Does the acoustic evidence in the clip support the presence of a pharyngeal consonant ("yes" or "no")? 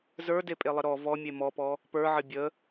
yes